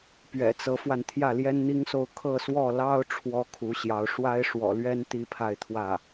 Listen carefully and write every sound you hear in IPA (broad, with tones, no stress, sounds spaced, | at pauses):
p ɥ ɛ̰˨˩ t͡s ɤ˧˥ f w a˧ n t̪ʰ j ä˥˩ l j ɛ˥ n n̪ i˥ ŋ s o˥˧ ʊ̯ kʰ ɤ˥˧ s w ɔ˥˩ l ɑ˥ ʊ̯ ʈ͡ʂʰ w ɔ˥ kʰ u˧˥ ɕ j ɑ˧˥ ʊ̯ ʂ w a˥ ɪ̯ ʂ w ɔ̰˨˩ l ɥ ɛ˥ n t̪ i˥ pʰ a˥˧ ɪ̯ t̪ʰ w ä˥˩